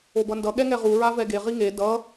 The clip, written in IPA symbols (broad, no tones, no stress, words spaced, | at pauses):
obʌndʌ ɠɛŋɛʁu ɹavɛɡe ʁiŋe dʌ